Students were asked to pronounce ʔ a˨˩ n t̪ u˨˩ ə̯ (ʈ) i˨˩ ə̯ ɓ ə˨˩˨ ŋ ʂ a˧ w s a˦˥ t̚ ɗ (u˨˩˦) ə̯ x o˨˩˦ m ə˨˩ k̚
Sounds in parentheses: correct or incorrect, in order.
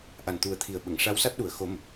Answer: incorrect: t̪ʰ, incorrect: u˨˩

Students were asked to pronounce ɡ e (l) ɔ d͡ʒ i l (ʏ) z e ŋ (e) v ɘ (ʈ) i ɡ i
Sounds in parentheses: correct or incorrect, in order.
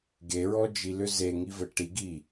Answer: incorrect: ɹ, correct, incorrect: i, correct

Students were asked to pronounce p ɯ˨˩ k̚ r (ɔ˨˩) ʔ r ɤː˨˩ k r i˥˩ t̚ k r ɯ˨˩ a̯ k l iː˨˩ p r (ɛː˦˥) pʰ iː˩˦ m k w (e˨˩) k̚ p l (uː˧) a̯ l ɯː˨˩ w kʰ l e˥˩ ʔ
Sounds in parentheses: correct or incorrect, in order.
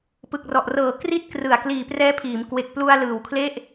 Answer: correct, correct, correct, incorrect: u˧

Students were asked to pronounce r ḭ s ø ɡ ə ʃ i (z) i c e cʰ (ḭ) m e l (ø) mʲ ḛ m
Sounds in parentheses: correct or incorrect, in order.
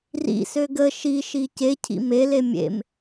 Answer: incorrect: ʃ, correct, incorrect: e

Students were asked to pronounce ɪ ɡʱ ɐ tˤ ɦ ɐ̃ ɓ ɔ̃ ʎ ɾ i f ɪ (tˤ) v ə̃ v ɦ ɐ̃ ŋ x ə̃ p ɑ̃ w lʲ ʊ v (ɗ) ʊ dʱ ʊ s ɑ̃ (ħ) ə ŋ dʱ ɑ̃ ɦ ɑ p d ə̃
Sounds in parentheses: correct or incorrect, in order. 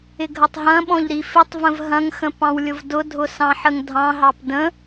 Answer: correct, incorrect: d, correct

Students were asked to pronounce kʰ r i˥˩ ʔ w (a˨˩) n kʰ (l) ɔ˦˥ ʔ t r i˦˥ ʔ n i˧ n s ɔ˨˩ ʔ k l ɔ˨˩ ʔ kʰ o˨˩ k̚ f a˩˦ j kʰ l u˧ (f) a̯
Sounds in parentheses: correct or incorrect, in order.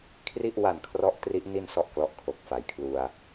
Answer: correct, incorrect: r, incorrect: none

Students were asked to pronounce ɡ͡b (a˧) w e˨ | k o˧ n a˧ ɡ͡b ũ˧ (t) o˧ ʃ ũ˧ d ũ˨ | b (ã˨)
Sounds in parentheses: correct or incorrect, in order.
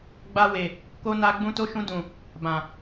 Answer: correct, correct, correct

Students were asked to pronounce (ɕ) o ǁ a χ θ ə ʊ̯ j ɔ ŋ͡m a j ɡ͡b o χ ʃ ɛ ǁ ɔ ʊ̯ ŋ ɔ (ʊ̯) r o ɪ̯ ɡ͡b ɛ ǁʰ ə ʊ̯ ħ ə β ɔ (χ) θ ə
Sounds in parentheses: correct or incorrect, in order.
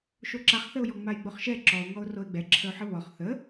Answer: incorrect: ʃ, correct, correct

